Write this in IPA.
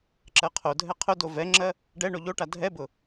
ǁ ɜ qʰ o dʱ ɛ qʰ ʊ d o v ɛ ŋ͡ǁ ɜ | ɖ ɛ ɳ o ʎ o ʈ a dʱ ɛ b ʊ

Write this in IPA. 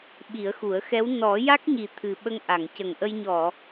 ɓ i˨˩˦ ə̯ x u˨˩˦ ə̯ x ɛ˧˥ w n ɔ˨˩˦ j a˦˥ k̚ ɲ i˨˩ t̪ʰ ɨ˨˩ ɓ ə˧ ŋ ʔ a˨˩˨ ŋ c ə˨˩ ŋ ʔ ə˧ j ɲ ɔ˨˩˨

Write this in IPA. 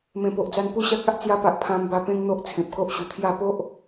m ẽ˨˩ p o˨ ʔ d͡z a˧ n p u˦ ɕ a˦ k̚ a˦ ʔ t͡s j a˧ p a˨ ʔ pʰ ã˧ m b a˧ p ẽ˦ ŋ n̪ o˦ ʔ t͡sʰ ẽ˨ p̚ k o˦ ʔ ɕ u˨˩ t̪ʰ j a˥˧ p o˦ ʔ

